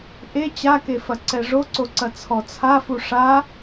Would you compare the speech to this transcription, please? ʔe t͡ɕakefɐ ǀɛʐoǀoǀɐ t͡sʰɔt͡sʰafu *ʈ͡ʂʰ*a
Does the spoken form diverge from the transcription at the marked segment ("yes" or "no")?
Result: yes